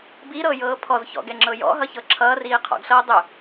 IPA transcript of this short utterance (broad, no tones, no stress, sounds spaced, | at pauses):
b i ɾ ɤː j ɤː pʰ ɔ z ç ɔ̰ ɡ ɛ ŋ͡ǁ ɤ j ɔ̰ ɦ ʌ ç ɤ ǁʰ ʌː r iː qʰ ɔ̰ ɡ ɬ ɤː dˤ ɵ